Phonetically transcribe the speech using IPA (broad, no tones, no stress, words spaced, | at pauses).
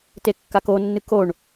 tekːakonːɨ koɳ